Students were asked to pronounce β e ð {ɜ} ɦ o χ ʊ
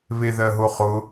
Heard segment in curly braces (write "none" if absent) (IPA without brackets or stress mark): ɜ